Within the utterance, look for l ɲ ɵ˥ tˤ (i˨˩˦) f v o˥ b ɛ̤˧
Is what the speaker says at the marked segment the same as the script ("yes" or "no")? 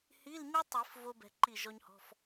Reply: yes